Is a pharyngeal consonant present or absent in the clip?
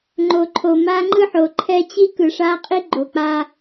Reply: present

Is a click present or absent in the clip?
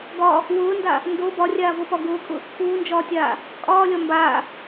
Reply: absent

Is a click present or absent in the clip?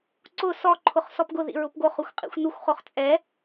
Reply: present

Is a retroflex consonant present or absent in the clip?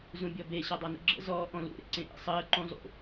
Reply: absent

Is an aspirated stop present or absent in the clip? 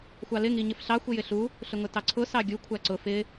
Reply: present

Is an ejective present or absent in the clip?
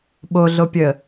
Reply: absent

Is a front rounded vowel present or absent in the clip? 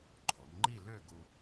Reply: present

